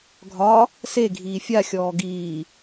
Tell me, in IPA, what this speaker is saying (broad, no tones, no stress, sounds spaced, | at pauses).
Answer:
ɡʱ ɒ | s e ɡʱ iː fʲ a xʲ ɔː ɡ iː